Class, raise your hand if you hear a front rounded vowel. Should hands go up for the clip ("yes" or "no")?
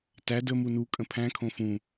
no